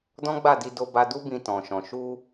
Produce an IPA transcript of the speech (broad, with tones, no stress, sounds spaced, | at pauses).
d ɔ̃˦ ɡ͡b a˦˨ d i˧ d o˧ b a˧ d u˦ b ĩ˧ t ɔ̃˨ ʃ ɔ̃˨ ʃ u˧